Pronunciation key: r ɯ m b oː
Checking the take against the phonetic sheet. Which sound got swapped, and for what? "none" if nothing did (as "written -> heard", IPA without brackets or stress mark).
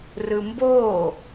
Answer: none